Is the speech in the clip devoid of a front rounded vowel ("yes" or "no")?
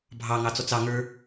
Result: yes